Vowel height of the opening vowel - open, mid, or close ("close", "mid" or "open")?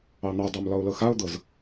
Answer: open